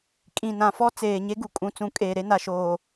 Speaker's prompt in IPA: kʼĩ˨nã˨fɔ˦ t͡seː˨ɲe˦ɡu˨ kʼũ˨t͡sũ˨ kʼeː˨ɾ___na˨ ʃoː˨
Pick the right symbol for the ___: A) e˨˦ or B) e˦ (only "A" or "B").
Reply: B